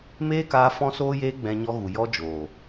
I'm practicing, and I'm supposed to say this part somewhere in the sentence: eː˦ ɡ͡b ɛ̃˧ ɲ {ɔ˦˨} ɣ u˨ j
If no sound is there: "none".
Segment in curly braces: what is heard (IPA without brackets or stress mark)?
ɔ˧